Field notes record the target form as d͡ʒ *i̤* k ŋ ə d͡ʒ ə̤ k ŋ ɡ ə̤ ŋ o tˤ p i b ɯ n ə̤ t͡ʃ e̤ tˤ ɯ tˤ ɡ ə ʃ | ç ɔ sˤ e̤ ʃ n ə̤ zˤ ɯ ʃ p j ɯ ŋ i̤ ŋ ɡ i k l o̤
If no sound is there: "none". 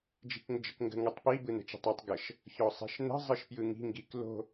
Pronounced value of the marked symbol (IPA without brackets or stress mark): i̤